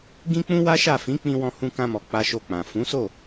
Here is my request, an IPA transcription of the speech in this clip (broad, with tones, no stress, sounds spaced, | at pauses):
ɡ ĩ˦ k͡p ũ˦ w a˦ ʃ a˦˨ f ĩ˨˦ k͡p ĩ˧ w ɔ̃˧ h ũ˧ k ã˧ m ɔ˨ k͡p a˧ ʃ o˧ k͡p ã˨ f ũ˨˦ s o˦˨